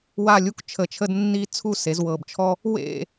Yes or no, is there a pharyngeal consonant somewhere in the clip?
no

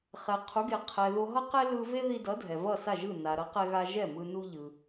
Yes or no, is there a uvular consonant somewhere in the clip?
yes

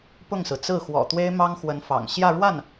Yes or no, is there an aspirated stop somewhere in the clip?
no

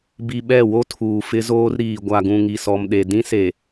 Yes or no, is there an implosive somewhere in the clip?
yes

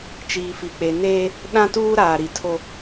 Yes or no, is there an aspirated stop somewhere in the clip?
yes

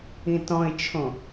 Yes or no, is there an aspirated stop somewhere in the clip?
yes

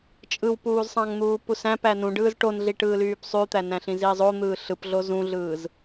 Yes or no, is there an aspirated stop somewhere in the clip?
no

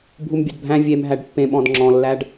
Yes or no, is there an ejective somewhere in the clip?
no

